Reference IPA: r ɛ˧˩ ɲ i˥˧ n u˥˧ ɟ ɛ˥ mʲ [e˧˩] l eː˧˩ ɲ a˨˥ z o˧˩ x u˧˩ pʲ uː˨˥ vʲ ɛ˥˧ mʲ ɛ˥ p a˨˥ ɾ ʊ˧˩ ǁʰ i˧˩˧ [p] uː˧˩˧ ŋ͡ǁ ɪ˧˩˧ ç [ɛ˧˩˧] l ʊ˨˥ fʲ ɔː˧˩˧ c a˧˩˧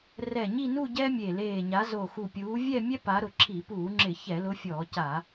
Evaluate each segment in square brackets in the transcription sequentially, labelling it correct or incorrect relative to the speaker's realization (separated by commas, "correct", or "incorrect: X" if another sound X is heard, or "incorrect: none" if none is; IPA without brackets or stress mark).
correct, correct, correct